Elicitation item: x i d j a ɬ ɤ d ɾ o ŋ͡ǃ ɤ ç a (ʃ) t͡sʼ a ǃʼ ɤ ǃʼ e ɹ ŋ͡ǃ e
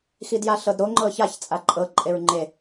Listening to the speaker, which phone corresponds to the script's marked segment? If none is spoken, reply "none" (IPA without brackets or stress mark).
ç